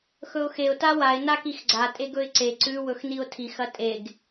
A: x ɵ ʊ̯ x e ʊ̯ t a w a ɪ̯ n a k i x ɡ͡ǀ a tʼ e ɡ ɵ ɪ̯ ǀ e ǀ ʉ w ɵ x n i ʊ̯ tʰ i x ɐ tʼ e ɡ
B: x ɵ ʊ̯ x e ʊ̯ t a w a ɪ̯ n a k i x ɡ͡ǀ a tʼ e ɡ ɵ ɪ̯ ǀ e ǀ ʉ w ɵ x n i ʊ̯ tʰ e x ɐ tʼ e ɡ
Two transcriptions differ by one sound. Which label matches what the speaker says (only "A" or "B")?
A